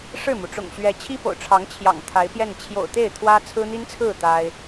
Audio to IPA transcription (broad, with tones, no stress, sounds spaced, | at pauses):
ʂ ɻ̩˥˩ m u˩ ʈ͡ʂ ʊ̰˨˩ ŋ ɕ ɥ ɛ˧˥ t͡ɕʰ i˥ p o̰˨˩ ʊ̯ ʈ͡ʂʰ ɑ˧˥ ŋ t͡ɕʰ j ɑ̰˨˩ ŋ t̪ʰ a˧˥ ɪ̯ p j ɛ˥˩ n t͡ɕʰ j o̰˨˩ ʊ̯ t̪ e˥˩ ɪ̯ t̪ʰ w ä˥ t͡sʰ ɹ̩˥ n̪ i˥ n t͡sʰ ɹ̩˥˩ t̪ a˥ ɪ̯